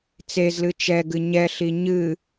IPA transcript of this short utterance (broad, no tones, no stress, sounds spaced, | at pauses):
t͡s e z l ɨ t͡ʃ ɛ ɡ ɨ ɲ ɛ ɬ i ɲ ɨ